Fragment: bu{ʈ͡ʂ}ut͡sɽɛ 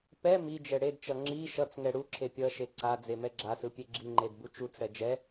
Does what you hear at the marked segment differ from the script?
yes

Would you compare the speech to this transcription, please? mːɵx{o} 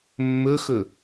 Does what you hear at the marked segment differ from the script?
yes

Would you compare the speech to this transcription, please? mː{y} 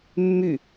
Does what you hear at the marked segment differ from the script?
no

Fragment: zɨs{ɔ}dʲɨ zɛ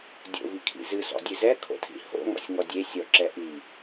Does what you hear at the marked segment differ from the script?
yes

